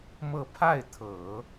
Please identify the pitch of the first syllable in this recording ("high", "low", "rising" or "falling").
falling